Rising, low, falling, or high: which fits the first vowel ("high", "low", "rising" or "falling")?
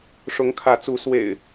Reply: rising